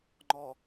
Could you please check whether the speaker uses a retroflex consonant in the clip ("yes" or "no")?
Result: no